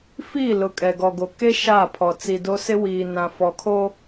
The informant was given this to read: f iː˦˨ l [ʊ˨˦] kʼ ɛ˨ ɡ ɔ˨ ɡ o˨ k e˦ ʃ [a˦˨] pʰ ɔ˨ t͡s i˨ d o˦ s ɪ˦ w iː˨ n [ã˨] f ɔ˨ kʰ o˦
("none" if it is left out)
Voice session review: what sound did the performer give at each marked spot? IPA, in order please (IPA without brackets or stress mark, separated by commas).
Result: ʊ˨, a˦˨, ã˨